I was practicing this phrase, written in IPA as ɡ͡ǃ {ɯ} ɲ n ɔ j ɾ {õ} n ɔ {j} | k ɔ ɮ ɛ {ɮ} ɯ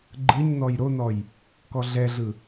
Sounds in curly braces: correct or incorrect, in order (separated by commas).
correct, incorrect, correct, correct